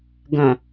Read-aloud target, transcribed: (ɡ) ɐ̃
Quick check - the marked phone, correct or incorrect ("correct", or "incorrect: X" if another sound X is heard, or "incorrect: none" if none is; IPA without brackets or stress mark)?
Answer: correct